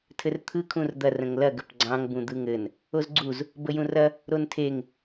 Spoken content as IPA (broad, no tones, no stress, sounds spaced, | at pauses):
tʰ ɘ r t̪ʰ ɯ kʰ ũ r d̪ ɐ r ə̃ ŋ l ɐ ɡ ə p ɡ͡ǀ ɑ̃ ŋ b ũ d̪ ɯ ŋ ɘ n | o z ɡ͡ǀ u z | b ə j ũ r ɐ | ɾ o n tʰ e ŋ